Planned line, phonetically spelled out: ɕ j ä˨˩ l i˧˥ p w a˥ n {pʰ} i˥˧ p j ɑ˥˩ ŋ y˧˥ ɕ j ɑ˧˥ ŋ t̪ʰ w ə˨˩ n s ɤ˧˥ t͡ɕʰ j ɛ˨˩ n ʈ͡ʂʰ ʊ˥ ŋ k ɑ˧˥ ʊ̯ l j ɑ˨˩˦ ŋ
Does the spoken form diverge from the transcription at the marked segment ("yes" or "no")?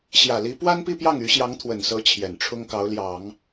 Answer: yes